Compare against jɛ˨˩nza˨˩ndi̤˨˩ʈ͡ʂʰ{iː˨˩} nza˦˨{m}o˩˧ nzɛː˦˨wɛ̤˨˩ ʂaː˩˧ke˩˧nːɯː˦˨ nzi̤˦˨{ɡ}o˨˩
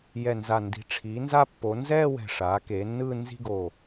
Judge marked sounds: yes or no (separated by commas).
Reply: no, no, yes